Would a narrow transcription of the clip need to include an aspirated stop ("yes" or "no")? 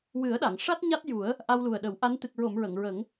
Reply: no